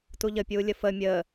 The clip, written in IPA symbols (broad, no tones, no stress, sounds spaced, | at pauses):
t u ʎ ə pʲ uː lʲ ə f ə mʲ əː